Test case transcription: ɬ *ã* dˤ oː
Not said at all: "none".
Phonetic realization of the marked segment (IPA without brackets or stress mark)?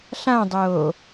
ã